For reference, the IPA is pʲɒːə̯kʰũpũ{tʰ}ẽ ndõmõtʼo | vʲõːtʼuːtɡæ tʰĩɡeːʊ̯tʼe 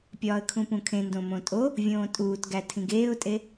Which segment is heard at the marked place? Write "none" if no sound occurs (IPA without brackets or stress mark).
kʰ